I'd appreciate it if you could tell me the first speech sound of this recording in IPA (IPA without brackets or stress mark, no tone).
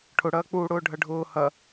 ʈʰ